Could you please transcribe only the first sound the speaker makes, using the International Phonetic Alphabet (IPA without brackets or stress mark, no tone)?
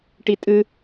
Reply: ʈ